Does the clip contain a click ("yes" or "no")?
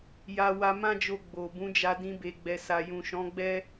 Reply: no